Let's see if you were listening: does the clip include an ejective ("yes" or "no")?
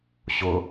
no